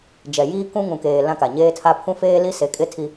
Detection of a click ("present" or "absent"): absent